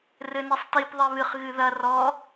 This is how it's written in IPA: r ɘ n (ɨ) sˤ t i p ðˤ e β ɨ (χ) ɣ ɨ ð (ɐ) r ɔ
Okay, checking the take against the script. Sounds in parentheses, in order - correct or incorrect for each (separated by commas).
incorrect, correct, correct